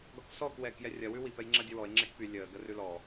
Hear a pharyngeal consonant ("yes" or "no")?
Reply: no